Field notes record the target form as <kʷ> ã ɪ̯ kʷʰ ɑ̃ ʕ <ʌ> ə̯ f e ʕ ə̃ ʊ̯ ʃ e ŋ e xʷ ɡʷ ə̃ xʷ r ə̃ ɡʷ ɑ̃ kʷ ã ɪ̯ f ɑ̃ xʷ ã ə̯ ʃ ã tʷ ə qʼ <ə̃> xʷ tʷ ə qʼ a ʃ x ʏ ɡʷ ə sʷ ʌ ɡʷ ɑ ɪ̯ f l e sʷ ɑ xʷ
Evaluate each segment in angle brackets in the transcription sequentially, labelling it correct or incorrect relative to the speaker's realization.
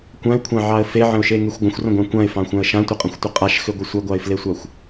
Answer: correct, incorrect: ɑ, correct

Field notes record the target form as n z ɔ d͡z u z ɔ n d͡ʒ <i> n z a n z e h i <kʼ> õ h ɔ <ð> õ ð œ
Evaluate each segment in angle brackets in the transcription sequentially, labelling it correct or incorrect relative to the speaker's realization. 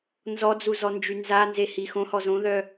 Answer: incorrect: y, incorrect: x, incorrect: z

